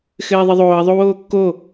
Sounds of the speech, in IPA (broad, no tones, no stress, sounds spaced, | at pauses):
x ɘː ðˤ ɨ ðˤ oː ə̯ ðˤ o w oː kː o